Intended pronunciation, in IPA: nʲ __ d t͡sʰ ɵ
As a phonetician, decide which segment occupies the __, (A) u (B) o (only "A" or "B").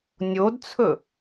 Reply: B